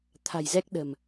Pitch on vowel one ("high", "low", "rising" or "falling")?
low